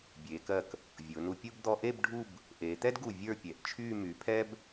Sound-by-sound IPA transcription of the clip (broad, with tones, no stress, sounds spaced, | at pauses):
bʲ eː˩˧ k ɜ˧˩ k | vʲ ʊː˩˧ n u˧ pʲ ʊː˥ b d̪ ɔ˧ ʔ e˥˧ b ɖʱ u˥˧ b | ʔ eː˩˧ t̪ ɛ˥ d ɡ u˧˩ vʲ ə˞˥˧ pʲ ɛ˩˧ ʔ t͡ʃʰ yː˥˧ m y˩˧ pʰ ɛ˧ b